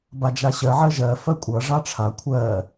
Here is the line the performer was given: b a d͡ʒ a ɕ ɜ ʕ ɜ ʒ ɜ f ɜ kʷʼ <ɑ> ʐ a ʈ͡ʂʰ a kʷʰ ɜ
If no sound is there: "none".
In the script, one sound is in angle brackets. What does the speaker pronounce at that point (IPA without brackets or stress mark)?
ʌ